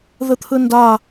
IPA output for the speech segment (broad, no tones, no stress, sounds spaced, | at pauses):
ð ɯ t̪ʰ ɯ n d a